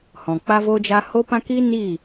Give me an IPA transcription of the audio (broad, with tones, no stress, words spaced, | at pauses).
hɔ̃˨k͡pa˦vo˦d͡ʒa˦ ho˦pã˦ kiː˦ niː˦˨